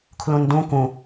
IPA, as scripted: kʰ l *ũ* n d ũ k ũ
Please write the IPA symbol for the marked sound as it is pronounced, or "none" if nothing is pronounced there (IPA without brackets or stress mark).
ũ